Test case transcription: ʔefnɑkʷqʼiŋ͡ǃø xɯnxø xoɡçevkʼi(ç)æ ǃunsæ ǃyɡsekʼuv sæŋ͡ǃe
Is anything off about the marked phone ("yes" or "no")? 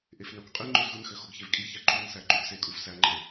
no